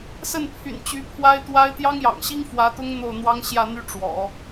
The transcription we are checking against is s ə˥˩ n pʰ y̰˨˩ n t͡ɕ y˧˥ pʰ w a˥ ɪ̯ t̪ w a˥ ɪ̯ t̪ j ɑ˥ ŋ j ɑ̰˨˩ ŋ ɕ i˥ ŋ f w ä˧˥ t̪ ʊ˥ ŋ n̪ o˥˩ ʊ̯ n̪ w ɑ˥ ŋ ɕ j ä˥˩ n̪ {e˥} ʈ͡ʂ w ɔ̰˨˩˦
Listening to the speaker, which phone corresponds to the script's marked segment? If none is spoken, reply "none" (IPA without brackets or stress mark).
y˥